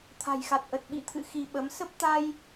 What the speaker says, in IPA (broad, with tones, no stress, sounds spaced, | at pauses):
t̪ʰ a̤˨˩ j x a˨˩ t̚ ʔ ə˨˩ t̚ ɓ ḭ˧˨ t̪ʰ ɨ̰˧˨ x i˧ ɓ ə˨˦ m s ə˦˥ p̚ t̪ a˧ j